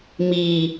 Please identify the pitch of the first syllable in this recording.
low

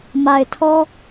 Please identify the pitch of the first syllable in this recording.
low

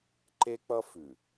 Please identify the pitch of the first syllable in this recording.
high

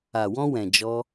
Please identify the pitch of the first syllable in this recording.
low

